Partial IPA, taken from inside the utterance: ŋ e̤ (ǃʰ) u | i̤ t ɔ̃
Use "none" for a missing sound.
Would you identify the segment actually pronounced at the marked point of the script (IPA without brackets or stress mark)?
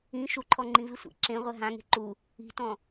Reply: ǃ